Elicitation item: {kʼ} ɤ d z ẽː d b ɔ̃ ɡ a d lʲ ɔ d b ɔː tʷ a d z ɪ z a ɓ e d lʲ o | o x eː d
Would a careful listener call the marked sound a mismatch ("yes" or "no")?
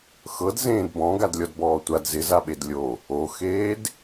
yes